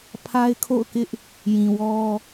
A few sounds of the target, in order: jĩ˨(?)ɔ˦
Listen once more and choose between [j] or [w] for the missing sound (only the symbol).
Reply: w